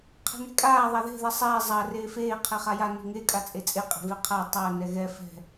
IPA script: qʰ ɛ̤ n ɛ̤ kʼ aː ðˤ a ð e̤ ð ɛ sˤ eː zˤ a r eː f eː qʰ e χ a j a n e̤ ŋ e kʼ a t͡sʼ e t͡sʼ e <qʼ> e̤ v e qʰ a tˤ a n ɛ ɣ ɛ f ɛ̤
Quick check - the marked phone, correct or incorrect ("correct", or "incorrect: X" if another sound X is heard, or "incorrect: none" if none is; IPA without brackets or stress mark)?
correct